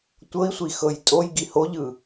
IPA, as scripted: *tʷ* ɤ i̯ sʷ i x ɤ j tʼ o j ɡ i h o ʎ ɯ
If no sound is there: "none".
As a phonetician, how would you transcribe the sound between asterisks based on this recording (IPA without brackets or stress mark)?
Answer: tʷ